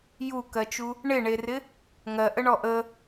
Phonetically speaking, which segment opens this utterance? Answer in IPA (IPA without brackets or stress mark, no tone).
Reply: j